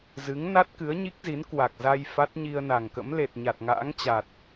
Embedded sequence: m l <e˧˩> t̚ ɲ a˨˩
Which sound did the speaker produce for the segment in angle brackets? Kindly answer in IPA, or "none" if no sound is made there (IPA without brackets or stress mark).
e˨˩